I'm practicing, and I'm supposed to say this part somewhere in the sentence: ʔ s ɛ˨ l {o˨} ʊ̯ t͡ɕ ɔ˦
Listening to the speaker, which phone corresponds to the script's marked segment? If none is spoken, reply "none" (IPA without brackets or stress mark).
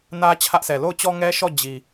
o˦˨